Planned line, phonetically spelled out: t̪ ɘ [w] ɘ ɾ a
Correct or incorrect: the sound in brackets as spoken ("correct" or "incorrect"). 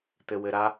correct